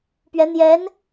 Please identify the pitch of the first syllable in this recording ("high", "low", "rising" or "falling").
rising